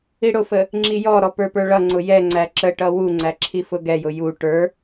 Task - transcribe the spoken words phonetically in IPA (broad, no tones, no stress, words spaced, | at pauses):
iɽʊfə | ŋ͡ǁijɔɾɔ pə˞pə˞ɭʌŋ͡ǀʊ jɛŋ͡ǀæ ǁə ʈʌwuŋ͡ǀæ ǁʰifʊɡɛjʊ ju ʈə˞